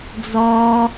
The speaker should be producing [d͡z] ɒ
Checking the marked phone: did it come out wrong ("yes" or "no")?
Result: no